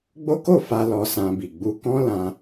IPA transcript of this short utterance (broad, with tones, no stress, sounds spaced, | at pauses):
ɡ͡b o˦ k o˦˨ f a˧ l ɔ˧ s ã˧ b i˨ ɡ͡b u˧ k ɔ̃˦ l ã˧